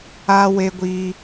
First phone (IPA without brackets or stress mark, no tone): a